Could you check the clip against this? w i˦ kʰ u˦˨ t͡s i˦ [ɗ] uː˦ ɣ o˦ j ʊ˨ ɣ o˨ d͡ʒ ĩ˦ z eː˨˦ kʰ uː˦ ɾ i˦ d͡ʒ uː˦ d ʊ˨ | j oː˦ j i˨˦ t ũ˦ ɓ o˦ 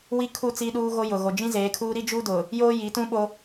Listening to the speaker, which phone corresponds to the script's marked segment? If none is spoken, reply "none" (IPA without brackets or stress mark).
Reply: ɗ